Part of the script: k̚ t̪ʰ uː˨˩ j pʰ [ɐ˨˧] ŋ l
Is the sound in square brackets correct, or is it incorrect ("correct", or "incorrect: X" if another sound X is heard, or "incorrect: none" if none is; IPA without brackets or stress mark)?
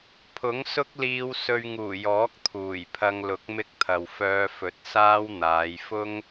incorrect: ɐ˧